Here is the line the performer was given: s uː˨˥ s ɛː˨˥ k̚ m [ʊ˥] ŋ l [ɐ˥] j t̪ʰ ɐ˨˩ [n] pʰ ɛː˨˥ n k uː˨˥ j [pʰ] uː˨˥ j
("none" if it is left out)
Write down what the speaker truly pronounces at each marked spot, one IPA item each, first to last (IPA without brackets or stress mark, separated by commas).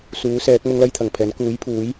ʊ˥, ɐ˥, ŋ, pʰ